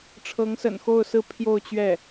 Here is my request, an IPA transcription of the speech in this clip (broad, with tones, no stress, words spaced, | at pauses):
ʈ͡ʂʰɤ˧˥ŋsə̰˨˩nxo˥˧ʊ̯sɹ̩˥˧ pʰjo˥˧ʊ̯t͡ɕɥɛ˥˩